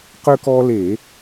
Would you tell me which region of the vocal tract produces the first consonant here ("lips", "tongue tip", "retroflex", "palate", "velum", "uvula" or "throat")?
uvula